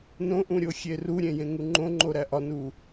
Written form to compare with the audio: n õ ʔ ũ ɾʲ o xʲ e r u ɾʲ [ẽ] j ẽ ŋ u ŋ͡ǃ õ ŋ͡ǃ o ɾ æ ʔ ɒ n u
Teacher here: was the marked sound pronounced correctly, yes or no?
yes